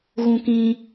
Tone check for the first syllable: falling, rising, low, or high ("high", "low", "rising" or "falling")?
high